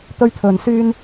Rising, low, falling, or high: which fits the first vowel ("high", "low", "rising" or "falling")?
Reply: high